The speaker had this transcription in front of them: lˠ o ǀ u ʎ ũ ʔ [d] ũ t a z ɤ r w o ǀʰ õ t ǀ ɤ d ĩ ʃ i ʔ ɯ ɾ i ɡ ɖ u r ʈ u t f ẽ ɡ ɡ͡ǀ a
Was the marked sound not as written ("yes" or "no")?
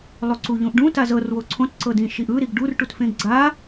yes